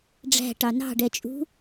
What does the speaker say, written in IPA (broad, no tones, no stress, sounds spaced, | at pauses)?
ɖ͡ʐ æ̤ ʈ ɑ n ɑ̤ ɖ ɛ t͡ʃʼ ṳ